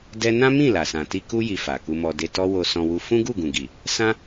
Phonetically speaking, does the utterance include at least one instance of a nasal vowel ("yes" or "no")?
yes